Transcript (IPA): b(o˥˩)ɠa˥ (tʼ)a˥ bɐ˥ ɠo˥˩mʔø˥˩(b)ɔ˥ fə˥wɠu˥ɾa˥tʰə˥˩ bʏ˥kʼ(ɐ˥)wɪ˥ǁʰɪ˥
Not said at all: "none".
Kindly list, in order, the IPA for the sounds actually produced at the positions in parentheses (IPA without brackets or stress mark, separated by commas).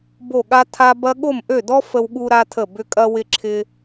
o˥˩, tʰ, d, ɐ˥